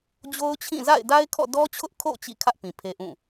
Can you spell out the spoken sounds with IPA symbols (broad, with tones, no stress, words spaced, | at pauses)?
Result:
d͡ʑo˦ʊ̯t͡ɕʰĩ˦˨ za̰˦˨ɪ̯da˦ɪ̯kʰɔ̰˦˨ dɔ˦t͡ɕʰʊ˦ʔkʰo̰˦˨ t͡ɕḭ˦˨kʰä˦ʔ pĩ˨pʰe˦ʔũ˦˨